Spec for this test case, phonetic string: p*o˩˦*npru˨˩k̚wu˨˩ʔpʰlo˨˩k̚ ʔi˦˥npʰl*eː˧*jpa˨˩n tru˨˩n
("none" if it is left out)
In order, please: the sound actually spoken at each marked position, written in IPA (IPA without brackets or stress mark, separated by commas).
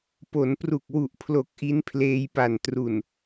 o˩˦, eː˧